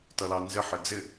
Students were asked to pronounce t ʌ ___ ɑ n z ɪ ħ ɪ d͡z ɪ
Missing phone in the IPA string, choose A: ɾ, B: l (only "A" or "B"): B